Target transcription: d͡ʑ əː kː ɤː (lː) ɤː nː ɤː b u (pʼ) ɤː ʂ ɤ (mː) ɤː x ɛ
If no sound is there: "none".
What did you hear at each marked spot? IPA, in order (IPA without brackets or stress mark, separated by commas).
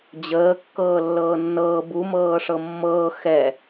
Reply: lː, m, mː